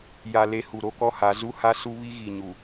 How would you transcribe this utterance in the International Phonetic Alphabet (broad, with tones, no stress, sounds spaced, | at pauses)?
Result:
j a˨ l e˨ h u˨ ɾ o˦ k ɔ˦ h a˨˦ z u˦ h a˦ s u˦ β i˦ ɣ i˨ ɲ u˨